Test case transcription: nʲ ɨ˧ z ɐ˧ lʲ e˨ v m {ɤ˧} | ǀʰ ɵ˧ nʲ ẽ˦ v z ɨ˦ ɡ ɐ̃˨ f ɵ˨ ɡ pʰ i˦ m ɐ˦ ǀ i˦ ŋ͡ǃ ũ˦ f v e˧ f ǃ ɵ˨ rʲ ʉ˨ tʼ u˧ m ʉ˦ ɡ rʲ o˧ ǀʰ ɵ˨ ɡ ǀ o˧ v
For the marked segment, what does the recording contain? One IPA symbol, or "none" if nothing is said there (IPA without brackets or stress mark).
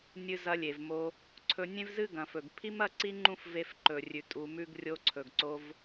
o˧